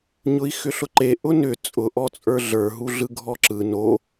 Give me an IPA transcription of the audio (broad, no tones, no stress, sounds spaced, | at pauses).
ɲ ʊ i̯ x ʏ ɬ ʊ ǃ e ʔ ʊ n ʏ t͡sʼ ʊ ʔ ɔ t͡sʼ ə˞ ɮ ə˞ ɦ u ɮ ɯ ɡʱ ɔ ǁ ɯ n o